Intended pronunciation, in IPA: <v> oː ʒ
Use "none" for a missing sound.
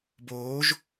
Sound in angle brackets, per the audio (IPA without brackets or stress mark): b